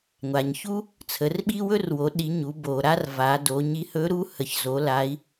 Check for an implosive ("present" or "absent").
present